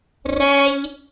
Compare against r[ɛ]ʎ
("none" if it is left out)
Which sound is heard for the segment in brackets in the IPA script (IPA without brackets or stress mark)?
ɛ